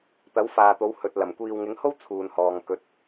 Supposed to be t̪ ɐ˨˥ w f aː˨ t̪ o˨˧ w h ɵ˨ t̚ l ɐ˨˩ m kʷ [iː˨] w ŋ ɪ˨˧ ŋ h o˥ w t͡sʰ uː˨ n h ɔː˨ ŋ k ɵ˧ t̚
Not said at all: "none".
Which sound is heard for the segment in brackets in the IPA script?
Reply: iː˨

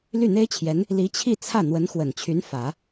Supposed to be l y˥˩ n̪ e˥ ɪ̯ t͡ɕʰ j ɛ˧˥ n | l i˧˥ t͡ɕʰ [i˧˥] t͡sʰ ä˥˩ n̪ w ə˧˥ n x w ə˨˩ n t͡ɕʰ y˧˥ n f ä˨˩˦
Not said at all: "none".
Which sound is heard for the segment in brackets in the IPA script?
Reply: i˥˧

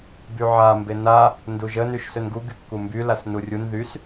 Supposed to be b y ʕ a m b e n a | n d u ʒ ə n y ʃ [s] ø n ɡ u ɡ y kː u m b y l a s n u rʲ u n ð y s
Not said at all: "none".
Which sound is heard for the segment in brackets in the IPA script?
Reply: s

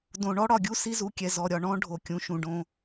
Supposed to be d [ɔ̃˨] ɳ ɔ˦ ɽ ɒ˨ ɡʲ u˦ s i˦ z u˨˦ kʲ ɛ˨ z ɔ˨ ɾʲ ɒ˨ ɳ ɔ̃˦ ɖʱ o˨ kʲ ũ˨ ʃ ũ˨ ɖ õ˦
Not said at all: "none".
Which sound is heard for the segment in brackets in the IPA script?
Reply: õ˨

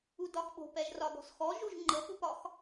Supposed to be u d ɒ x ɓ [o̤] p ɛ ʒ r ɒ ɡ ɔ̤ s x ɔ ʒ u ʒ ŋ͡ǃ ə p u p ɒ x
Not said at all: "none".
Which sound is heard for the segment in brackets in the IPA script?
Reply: o̤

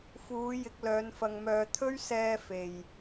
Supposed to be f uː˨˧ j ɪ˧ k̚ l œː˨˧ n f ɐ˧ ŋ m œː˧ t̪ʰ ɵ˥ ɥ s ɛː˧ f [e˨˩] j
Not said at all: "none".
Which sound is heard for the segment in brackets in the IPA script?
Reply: e˨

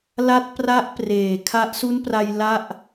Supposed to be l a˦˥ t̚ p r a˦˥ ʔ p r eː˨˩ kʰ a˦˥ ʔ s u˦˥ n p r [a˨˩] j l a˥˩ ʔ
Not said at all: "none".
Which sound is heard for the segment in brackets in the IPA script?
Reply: a˧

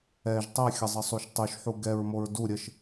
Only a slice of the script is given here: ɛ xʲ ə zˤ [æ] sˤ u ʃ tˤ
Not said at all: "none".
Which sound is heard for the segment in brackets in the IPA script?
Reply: ə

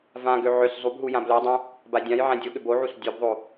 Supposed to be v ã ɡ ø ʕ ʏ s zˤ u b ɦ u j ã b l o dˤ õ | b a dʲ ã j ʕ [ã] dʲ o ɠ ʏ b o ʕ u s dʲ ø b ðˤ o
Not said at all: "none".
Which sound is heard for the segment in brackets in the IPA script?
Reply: ã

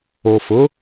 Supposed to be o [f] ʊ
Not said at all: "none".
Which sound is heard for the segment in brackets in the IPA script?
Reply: f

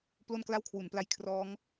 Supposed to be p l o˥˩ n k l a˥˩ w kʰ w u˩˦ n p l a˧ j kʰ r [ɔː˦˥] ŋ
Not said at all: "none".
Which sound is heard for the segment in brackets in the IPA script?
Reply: ɔː˦˥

